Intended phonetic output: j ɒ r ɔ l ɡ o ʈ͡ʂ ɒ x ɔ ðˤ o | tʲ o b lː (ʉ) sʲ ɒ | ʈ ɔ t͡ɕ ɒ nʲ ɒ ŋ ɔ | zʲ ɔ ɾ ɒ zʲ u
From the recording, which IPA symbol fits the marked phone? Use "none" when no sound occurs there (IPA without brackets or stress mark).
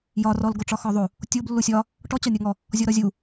u